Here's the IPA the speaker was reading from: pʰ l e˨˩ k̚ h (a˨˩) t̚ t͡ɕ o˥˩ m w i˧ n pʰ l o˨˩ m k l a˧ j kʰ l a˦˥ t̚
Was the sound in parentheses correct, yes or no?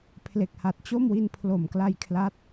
yes